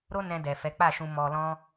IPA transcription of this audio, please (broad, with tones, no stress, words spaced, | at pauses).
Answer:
ɾo˦ nɛ̃˧dɛ˨ fɛ˨˦k͡pa˦˨ʃũ˧ mɔ˧lɔ̃˦